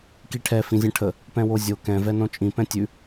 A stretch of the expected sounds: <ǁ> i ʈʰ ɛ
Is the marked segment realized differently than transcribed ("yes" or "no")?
yes